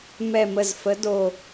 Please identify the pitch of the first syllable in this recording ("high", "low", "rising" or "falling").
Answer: low